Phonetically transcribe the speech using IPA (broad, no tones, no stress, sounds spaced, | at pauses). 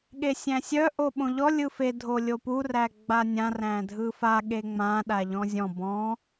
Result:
ɠ e sʲ æ̃ sʲ œ ʔ o ɓ õ ʎ ɔ lʲ ɯ f e dʱ o lʲ o p u r æ ɡ͡b a nʲ ã r æ̃ dʱ ɯ f a ɠ e ŋ͡m ã ɗ a ʎ ɔ̃ zʲ ɔ̃ b ɔ̃